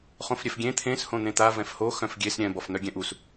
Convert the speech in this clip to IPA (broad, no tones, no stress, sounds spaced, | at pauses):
χ õ f ɾʲ ɛ f ɡʲ ẽ t̪ʰ ẽ s h õ n̪ ẽ t̪ a v ɛ̃ f h o x œ̃ f ɡʲ e s ɾʲ ɛ̃ b ɔ f n̪ œ ɡʲ ɛ̃ ʔ u s